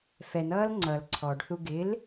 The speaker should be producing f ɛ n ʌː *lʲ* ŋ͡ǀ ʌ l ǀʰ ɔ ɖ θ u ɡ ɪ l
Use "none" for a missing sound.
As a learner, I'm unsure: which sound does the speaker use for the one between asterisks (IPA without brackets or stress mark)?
l